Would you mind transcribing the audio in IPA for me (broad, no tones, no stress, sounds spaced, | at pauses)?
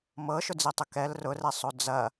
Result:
m ɤ ʃ ʊ d͡z i tˤ ʊ k ɛ l r ʊ r ɛ sˤ o d͡z ɐ